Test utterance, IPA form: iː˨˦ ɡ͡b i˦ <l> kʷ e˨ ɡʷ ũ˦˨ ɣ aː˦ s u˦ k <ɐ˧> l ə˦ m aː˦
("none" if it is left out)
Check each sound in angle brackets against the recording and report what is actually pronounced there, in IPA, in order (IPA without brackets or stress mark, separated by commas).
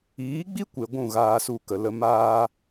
none, ə˧